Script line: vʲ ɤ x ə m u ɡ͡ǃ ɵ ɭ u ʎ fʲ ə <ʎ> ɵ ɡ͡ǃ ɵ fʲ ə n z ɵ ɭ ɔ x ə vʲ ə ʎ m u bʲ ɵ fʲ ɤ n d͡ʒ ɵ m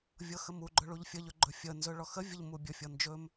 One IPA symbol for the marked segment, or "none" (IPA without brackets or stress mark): ʎ